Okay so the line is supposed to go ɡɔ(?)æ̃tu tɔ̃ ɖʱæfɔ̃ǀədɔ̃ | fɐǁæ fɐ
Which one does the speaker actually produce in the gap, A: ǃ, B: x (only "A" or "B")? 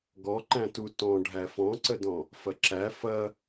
A